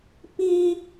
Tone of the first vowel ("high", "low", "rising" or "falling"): high